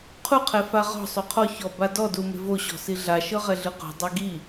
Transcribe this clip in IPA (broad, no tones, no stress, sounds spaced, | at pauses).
qʰ u qʰ ɛ f a ʁ ɔ̤ sˤ o qʰ ɔ ç ɔ b a d ɔ d u m e̤ v o ɕ ɔ̤ s i ɮ a ʃ ɤ ʁ ɛ ɮ ɯ q o̤ dˤ ɤ ɡ i